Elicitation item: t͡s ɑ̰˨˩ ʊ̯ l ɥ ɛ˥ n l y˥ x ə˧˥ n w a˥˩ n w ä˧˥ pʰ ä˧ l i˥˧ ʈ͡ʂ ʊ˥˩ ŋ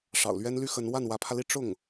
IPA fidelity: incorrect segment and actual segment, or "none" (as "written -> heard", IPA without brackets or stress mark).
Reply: t͡s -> ʂ